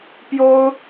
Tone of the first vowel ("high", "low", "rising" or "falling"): high